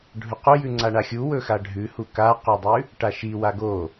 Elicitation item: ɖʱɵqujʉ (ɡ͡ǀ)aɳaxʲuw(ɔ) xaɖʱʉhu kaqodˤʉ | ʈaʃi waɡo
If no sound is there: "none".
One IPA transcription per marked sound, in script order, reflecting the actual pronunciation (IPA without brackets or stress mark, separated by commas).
ŋ͡ǀ, ɵ